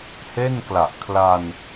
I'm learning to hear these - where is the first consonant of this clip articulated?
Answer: throat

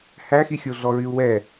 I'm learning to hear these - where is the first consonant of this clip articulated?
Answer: throat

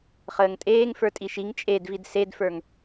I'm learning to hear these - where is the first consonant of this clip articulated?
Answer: uvula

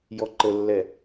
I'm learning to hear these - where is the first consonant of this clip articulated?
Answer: palate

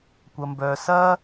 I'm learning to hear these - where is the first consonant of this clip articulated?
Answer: velum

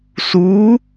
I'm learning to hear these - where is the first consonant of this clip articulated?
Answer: tongue tip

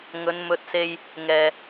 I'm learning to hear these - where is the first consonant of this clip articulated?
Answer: velum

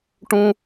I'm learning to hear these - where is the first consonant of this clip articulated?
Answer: retroflex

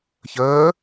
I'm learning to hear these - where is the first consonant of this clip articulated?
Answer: palate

